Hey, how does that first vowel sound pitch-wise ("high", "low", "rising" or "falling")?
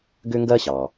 high